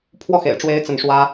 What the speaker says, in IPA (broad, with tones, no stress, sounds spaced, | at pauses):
pʰ w ɔ˥˩ x ḛ˨˩ ɪ̯ ʈ͡ʂ w e˧˥ ɪ̯ t͡s ə˥˩ n ʂ w ä˥